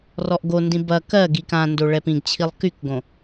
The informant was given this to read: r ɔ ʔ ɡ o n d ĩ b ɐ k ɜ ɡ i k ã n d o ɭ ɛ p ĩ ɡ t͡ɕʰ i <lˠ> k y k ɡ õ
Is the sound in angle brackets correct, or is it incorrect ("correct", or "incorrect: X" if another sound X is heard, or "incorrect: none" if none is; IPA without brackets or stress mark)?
correct